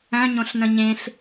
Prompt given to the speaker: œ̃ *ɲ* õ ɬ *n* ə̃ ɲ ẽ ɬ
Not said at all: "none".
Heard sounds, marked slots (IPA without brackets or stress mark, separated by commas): ɲ, n